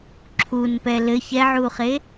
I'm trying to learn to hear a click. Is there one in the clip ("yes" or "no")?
yes